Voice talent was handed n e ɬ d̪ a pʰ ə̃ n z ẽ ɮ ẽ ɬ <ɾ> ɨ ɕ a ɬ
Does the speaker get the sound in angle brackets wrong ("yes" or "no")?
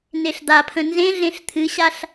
yes